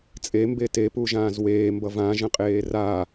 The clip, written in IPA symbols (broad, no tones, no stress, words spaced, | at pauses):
t͡sʼembe tepuʒãːz weːmbʌ vãʒə̃qʼeː ra